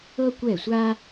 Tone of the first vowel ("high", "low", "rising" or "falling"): high